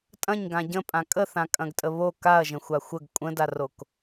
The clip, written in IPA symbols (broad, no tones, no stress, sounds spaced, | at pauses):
tʼ ɐ̃ ɲ ɡ ã ɟ ə̃ pʼ ã kʼ ə θ ã kʼ ɐ̃ ɡ tʼ ə β o k a ɐ̯ ʒ ə̃ xʷ a xʷ ə ɡ kʷʼ ə̃ d a r o k